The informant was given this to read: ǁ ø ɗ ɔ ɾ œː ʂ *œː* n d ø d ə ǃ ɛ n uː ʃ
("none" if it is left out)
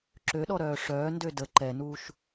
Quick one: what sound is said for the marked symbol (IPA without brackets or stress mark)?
œː